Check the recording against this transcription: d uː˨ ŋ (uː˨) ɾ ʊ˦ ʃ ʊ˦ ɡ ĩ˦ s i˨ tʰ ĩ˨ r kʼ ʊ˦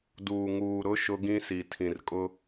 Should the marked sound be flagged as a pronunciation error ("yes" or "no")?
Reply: no